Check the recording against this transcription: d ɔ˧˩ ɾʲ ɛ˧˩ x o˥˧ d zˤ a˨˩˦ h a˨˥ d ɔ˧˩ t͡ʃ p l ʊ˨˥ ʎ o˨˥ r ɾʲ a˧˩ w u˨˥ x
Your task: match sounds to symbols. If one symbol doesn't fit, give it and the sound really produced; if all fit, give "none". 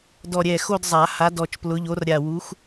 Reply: none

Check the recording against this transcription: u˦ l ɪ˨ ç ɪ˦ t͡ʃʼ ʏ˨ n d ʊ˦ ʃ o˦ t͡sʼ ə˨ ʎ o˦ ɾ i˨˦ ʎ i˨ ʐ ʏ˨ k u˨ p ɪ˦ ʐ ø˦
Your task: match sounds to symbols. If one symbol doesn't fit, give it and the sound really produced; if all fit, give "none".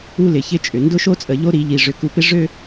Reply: none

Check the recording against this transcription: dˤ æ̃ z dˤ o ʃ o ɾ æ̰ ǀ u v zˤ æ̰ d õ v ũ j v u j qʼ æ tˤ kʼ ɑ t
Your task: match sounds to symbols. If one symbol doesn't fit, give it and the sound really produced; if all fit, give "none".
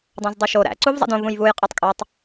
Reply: t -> tˤ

